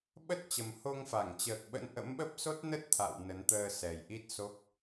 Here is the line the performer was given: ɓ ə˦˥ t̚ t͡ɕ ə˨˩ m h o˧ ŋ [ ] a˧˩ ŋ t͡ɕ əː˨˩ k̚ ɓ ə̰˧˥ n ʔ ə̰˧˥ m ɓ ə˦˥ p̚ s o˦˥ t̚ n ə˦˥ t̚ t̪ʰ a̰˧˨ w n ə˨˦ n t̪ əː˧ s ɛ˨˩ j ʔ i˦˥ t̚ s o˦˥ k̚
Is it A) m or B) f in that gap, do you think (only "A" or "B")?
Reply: B